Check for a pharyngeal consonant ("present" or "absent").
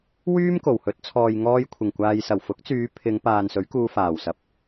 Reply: absent